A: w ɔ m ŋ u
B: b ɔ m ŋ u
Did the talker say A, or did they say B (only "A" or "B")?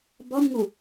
B